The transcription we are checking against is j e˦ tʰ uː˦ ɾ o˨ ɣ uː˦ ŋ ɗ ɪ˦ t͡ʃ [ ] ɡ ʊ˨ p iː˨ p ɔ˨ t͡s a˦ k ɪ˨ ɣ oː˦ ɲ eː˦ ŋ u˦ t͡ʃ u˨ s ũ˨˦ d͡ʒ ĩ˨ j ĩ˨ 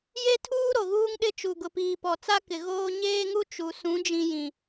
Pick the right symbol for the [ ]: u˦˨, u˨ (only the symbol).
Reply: u˨